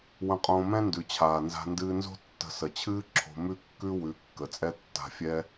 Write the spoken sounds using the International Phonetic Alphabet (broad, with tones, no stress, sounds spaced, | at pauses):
w ə̃˧ qʼ õː˧ m ɛ̃˦ n d ʉ˨ t͡ɕʰ aː˨ n z a̤˧ n d ɨː˧ n z o̤˦ tː ə̤˧ s ə˨ t͡ɕʰ ɨː˦ ǁʰ o̤˧ m ʉ˦ kː ʉ˦ w ʉ˨˦ kː ə˨ t͡sʼ ɛ˦ tː a̤˧ fʲ ɛ˦